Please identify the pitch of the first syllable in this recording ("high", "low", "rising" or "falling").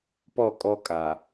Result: falling